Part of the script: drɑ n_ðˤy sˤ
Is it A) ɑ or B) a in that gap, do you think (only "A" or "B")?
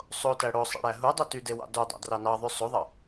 A